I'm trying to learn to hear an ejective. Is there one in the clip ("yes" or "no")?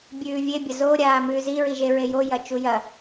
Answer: no